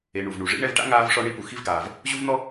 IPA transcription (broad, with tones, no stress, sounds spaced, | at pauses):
e˨ ɳ u˩ v ɳ u˩ ʐ ḭ˥ ɳ ɛ˦ v ʈ a̰˥ ŋ aː˥ v ʂ ɔ˥ ɳ i˥ p u˨ x i˦ v ɡ aː˩ v | ʑ u˥ v n̪ ɔ˥